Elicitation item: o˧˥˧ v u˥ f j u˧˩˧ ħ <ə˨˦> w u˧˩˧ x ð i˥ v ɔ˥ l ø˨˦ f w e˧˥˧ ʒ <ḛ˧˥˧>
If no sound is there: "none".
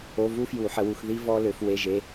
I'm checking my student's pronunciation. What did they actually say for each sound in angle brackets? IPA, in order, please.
ə˨˦, e˧˥˧

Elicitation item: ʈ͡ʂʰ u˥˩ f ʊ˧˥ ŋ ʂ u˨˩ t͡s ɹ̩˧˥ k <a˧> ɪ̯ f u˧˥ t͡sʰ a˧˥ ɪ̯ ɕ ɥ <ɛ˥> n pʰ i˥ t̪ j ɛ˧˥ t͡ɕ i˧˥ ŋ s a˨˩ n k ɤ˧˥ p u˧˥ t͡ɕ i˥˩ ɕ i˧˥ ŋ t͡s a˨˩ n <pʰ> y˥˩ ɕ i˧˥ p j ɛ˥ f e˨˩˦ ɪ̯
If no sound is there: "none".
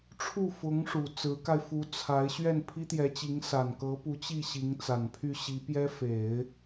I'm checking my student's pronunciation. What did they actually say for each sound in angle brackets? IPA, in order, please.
a˧, ɛ˥˩, pʰ

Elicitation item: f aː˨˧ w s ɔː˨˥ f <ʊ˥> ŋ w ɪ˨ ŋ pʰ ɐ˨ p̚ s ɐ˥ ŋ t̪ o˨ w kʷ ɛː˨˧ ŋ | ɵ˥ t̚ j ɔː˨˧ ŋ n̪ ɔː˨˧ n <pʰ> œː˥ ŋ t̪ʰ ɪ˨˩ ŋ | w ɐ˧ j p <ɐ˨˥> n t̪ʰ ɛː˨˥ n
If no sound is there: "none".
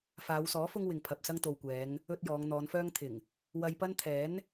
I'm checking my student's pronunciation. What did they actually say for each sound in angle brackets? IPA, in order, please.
ʊ˥, f, ɐ˥

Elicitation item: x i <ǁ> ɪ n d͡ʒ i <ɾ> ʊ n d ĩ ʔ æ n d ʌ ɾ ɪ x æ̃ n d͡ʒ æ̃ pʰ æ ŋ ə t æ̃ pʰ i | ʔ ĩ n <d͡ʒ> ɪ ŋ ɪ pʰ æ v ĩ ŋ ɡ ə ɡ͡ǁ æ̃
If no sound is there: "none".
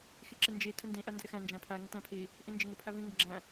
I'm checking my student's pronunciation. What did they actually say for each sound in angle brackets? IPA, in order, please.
ǁ, tʰ, d͡ʒ

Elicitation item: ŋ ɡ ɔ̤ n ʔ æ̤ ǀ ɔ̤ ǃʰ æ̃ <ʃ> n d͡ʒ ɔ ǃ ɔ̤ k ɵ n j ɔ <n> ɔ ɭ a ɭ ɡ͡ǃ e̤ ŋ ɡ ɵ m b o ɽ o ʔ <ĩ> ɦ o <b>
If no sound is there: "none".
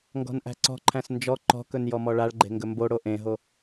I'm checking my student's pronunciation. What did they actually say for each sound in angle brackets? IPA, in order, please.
s, m, ẽ, none

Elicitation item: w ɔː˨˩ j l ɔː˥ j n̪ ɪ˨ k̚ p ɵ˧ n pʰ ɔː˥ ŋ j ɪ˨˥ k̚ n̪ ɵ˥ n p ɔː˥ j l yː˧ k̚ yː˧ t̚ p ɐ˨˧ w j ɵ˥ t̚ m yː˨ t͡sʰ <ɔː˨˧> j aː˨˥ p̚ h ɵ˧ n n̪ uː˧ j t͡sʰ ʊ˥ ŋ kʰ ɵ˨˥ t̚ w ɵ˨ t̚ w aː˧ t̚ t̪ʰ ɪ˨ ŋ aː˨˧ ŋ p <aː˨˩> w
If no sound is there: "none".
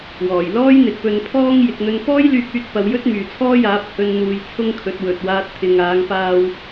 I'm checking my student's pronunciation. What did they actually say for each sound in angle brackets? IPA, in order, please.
ɔː˥, aː˧

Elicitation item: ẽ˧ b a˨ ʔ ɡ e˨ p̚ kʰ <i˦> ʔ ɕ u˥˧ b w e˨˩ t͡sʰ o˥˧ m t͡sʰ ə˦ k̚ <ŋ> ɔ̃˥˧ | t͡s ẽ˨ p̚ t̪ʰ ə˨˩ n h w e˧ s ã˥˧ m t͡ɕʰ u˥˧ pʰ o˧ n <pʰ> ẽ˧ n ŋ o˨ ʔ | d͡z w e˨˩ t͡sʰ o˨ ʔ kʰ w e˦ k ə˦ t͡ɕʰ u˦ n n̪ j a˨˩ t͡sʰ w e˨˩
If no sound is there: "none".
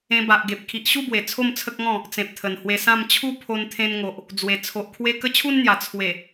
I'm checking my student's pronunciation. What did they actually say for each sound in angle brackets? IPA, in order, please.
i˨, ŋ, t̪ʰ

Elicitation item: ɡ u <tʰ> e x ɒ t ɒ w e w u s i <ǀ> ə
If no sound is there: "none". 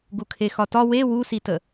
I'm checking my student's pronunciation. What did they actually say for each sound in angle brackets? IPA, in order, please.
kʰ, t

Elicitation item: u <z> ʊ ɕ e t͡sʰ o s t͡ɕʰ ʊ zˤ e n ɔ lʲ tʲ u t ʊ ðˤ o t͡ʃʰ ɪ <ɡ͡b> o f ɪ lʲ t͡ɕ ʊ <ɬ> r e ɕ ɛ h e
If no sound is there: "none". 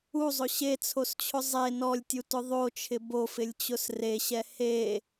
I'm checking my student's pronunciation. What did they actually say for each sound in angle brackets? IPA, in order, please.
zˤ, b, s

